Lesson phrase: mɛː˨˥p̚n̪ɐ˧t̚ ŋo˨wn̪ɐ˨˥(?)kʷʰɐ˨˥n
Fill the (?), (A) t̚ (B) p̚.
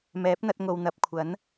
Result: B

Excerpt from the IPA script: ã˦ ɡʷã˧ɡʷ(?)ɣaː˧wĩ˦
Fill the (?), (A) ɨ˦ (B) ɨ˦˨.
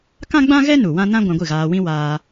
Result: B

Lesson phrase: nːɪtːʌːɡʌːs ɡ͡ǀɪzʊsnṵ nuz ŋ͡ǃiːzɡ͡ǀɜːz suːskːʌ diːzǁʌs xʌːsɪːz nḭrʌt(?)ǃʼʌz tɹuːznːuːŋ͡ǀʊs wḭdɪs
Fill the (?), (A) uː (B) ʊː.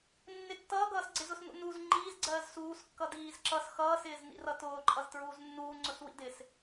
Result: B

